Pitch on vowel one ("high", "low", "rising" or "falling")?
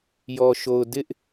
low